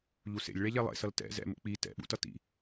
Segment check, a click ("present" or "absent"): absent